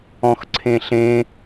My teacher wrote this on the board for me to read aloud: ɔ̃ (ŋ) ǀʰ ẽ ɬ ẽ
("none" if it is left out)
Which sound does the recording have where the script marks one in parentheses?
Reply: x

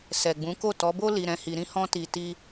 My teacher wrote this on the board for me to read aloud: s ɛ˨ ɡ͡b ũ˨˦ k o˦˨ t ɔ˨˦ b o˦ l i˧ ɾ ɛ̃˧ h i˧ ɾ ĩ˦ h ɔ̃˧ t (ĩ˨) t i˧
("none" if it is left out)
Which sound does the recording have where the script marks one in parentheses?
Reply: i˨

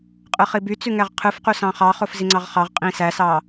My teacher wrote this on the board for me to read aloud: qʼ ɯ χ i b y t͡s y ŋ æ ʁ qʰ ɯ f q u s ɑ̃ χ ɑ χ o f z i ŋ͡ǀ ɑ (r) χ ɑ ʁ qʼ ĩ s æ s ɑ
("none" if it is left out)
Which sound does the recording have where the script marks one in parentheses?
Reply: ʁ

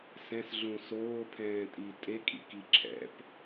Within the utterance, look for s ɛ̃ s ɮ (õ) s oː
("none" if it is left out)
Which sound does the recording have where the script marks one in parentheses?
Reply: ũ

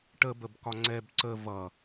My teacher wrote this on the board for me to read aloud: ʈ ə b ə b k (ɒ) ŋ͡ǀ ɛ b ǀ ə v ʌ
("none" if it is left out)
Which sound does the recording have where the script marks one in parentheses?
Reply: ɒ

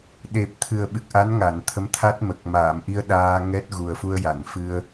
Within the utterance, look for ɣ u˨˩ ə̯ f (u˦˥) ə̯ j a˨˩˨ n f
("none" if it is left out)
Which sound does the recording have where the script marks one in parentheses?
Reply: u˧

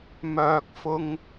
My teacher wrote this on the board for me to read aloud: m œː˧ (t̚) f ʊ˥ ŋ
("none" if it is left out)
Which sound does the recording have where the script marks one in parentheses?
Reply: k̚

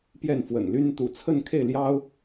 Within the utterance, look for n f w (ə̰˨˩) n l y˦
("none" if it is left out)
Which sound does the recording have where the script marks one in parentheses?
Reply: ə̰˨˩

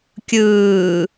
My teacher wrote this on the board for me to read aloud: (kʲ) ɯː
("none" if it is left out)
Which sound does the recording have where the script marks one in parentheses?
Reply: kʲ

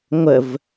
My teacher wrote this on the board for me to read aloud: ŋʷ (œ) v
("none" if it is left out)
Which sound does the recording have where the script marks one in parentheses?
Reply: ə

